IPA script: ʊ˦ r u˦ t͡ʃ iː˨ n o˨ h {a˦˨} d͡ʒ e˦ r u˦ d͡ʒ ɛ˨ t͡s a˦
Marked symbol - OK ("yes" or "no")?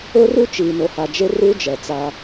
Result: no